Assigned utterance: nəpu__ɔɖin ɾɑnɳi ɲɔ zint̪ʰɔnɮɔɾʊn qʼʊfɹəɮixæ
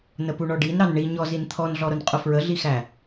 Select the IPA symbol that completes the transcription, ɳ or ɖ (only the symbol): ɳ